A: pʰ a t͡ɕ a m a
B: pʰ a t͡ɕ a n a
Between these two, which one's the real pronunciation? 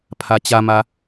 A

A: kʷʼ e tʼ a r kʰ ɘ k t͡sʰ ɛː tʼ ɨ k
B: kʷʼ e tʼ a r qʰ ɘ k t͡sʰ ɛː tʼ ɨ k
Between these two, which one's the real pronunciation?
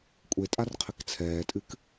B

